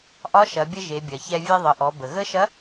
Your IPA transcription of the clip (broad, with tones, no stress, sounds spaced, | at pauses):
ʔ ɒ˧˥ ʃ ɐ˩˧ bʲ ə˧ ʒ e˩˧ bʲ ɐ˩ ç ɛ˧ vʲ e˧ ðˤ ə˩˧ ʔ ɔ˩˧ b ə˩ ɣ ə˧˥ ʃ ɐ˧˥